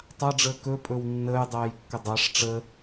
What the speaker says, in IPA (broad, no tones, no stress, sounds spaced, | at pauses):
tˤ a ɖ͡ʐ əː k ɵ pʼ ɵ w nː əː j dˤ ɛː j kː ə dˤ a ʂ ʈ͡ʂ ə